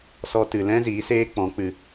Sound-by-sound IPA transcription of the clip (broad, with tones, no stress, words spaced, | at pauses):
sɔ˧tɨ˨lɛ̃˦ ziː˨˦seː˦k͡pɔ̃˨˦ k͡pɨ˨